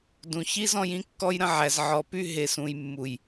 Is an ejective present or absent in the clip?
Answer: absent